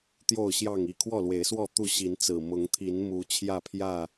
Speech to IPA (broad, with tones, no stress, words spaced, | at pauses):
t̪jo˥˨ʊ̯ɕjɑ˥˨ŋi˥˨ kʰwɔ˥˨lwe˨˦ɪ̯swɔ˥˨ t̪u˥˨ɕi˨˦nt͡sɹ̩˨˩ mʊ˨˦ŋt̪ʰi˨˦nmu˨˦ t͡ɕʰjä˥˨pʰjä˥˨